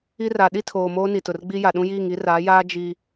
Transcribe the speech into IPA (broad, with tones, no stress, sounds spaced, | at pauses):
i˦ r a˨ ɗ i˦ tʰ oː˨ m oː˦ n i˨ t ʊ˨ r ɡ͡b i˦ j a˨ ɗ ũ˦ j iː˦˨ ŋ i˦ r aː˨˦ j aː˦ d͡ʒ i˦